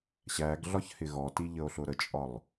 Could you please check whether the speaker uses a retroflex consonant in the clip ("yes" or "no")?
no